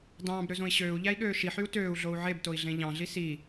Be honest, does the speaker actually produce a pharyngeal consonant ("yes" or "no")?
yes